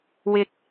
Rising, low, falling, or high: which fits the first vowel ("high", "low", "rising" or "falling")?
low